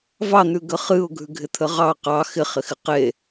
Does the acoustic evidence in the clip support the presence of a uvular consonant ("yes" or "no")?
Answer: yes